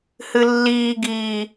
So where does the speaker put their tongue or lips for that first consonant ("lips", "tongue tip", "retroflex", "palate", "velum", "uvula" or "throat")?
throat